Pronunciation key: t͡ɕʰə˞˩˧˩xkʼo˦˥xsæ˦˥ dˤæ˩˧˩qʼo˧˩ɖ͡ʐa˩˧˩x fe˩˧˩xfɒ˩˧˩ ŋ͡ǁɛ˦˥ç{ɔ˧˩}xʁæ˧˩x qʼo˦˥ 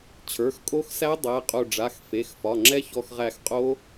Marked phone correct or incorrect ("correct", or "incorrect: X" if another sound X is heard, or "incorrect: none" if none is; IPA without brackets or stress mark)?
correct